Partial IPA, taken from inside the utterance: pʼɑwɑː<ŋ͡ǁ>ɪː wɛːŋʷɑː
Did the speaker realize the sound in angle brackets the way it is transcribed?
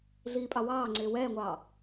no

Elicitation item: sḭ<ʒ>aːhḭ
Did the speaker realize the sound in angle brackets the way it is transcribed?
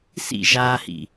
yes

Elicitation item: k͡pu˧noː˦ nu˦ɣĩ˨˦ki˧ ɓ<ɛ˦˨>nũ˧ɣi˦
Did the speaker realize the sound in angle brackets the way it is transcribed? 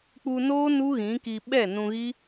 yes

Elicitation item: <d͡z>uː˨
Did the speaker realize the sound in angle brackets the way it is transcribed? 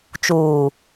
no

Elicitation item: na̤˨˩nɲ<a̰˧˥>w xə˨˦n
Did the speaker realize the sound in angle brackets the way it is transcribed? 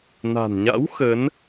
yes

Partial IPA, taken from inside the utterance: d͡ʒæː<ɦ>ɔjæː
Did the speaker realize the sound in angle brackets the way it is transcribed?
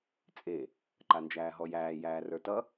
yes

